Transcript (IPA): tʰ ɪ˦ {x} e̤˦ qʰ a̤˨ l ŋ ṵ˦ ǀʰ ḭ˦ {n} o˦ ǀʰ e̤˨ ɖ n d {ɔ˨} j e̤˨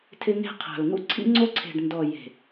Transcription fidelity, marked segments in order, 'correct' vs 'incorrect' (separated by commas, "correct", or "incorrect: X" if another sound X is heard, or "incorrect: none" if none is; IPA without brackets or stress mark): incorrect: ŋ, incorrect: ŋ͡ǀ, correct